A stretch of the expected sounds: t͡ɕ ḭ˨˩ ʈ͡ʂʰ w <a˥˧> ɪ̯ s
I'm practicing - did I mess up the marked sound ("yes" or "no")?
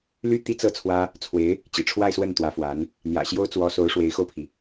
no